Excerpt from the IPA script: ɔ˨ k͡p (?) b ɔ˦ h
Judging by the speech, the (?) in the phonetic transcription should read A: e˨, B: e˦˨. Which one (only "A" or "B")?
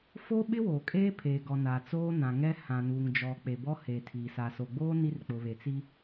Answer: A